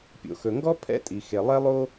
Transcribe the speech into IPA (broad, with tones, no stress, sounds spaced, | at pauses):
pʲ o̰˩ x ɵ˩ ŋ ɡ ɔ˥ pʰ ɛ̰˥ tʼ i˩ x e˩ lˠ ɛ˥ lˠ o˥